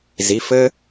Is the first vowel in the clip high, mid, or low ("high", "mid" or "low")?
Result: high